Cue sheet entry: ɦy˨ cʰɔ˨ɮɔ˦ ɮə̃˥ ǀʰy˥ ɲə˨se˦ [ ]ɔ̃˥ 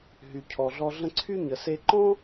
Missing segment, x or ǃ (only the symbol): ǃ